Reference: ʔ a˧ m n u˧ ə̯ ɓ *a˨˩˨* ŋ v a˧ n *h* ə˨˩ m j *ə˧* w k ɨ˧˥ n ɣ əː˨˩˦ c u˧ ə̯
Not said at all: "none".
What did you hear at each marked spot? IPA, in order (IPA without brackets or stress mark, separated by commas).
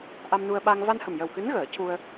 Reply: a˧, h, ə˨˩